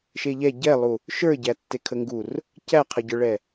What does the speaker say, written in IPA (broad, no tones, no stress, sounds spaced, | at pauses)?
ʃ e ʎ ɛ ɟ ɛ lˠ u | ʃ ə˞ ɟ æ tː e kʰ ə ŋ ɡ u r | c æ qʰ ə ɟ ə˞ ɭ ɛ